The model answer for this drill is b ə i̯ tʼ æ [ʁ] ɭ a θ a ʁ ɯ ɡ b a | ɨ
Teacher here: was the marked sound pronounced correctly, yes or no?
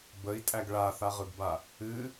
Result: no